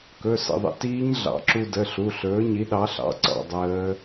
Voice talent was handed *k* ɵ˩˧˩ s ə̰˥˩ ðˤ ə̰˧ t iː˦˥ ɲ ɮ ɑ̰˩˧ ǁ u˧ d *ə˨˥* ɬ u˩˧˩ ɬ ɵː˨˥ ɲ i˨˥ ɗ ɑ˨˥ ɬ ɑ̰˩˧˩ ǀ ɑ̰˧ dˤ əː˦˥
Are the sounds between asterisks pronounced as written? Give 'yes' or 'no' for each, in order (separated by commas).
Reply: yes, no